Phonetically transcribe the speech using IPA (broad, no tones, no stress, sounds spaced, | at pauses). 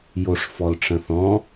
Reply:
j o ʂ f ɔ l ʈ͡ʂ ə̃ θ ɔ̃